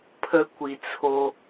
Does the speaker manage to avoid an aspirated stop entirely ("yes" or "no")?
no